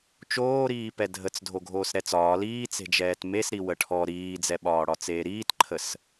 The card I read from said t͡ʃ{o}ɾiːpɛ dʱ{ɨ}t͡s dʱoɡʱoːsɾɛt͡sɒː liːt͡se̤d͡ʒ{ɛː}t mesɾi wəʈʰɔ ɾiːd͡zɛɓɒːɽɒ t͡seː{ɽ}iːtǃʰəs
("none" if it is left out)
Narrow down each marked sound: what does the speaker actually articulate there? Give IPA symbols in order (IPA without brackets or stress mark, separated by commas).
oː, ə, ɛː, ɾ